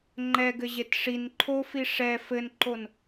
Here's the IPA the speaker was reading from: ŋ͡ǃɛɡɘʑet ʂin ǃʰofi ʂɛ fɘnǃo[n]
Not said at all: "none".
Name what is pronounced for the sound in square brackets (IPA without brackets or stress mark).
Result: n